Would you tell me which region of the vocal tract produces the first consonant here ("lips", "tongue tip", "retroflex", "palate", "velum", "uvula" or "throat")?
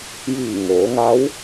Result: palate